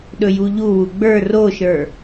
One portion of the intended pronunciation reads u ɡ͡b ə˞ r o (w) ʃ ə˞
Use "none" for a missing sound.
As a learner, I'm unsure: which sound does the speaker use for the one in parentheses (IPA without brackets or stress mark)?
none